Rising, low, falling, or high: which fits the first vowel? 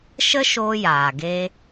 high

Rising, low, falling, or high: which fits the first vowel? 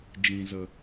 low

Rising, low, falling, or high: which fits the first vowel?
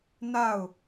falling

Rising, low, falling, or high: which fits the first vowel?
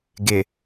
low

